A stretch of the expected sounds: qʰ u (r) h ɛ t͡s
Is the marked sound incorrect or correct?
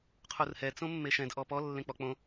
correct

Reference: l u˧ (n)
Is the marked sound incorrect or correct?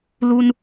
correct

